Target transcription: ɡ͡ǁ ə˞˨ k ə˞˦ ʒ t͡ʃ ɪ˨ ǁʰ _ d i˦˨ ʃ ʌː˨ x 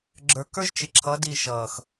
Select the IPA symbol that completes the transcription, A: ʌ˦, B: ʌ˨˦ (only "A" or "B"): B